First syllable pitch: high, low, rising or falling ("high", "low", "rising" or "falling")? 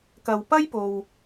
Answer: low